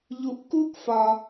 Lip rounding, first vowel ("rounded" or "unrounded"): rounded